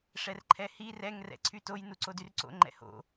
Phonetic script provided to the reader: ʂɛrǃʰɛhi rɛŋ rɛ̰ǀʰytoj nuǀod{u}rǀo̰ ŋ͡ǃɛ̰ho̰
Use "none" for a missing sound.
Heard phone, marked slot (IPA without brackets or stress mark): y